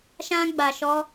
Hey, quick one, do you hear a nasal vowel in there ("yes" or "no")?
yes